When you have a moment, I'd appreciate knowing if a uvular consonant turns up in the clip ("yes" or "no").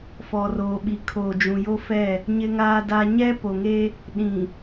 no